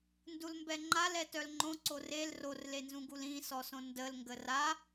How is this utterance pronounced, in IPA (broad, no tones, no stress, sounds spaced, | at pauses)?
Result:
n d u l m b ɛ ŋ͡ǃ a l ɛ t œ l ŋ͡ǃ õ ǀ o r e l r o r l e n z ũ ɡ u l ĩ s ɔ s õ n d ə l ŋ ɡ ə r a